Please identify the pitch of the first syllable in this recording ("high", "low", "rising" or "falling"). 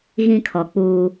high